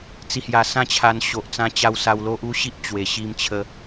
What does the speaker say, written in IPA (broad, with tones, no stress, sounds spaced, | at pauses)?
t͡s i˨˩ h j a˨˩ s ã˥˧ t͡ɕʰ a˧ n ɕ o˨ ʔ t͡s ã˧ t͡ɕ a˧ w s a˧ w l o˦ ʔ u˦ ɕ i˦ ʔ t͡ɕ w e˧ ɕ i˦ m t͡ɕʰ ə˦